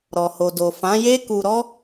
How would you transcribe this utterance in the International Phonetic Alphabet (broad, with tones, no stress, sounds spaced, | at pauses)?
ɾ ɔ˨ h o˨ d o˨ f ã˨˦ j e˦ k u˧ ɾ ɔ˦